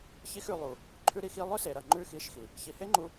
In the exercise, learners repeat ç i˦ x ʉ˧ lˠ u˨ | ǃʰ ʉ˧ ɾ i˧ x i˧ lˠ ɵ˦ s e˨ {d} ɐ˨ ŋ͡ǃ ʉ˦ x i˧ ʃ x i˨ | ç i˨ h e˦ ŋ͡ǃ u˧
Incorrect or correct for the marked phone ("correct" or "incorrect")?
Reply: incorrect